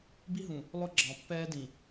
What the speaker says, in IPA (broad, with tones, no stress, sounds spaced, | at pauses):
b i˦ ɦ ũ˨ | lˠ ʊ˦ ɡ͡ǁ ɑ̃˨ pː ɛː˦ d ĩ˨